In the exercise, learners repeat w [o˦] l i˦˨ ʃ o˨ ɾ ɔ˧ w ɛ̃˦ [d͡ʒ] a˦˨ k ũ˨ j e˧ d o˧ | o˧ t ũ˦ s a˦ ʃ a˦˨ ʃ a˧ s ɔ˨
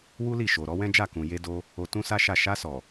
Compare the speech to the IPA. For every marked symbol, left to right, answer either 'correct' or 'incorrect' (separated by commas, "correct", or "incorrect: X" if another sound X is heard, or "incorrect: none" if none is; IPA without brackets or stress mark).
incorrect: u˦, correct